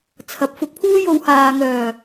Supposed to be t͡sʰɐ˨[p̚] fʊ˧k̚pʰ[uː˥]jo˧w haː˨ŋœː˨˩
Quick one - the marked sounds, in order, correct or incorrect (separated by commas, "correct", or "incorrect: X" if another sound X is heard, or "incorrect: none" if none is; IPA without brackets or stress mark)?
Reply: correct, correct